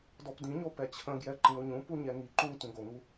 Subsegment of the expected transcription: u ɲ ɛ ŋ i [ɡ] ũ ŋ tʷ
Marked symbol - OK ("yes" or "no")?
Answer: no